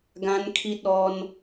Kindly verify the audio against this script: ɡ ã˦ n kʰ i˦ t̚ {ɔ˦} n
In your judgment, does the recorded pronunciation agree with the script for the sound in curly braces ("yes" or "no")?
yes